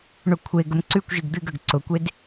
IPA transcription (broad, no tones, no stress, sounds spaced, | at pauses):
ɳ ʊ kʷʰ e ɡ ə m ǀ ʉ kʷ ʒ ɨ ɡ d̪ ɨ ɡ ə ɡ ǀ ʊ kʷ e d